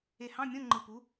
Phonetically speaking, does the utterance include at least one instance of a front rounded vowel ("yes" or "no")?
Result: no